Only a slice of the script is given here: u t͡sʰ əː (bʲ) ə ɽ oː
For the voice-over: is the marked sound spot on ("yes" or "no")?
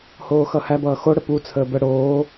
no